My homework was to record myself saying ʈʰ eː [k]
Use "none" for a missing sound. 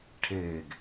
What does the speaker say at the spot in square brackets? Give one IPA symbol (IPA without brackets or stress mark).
ɡ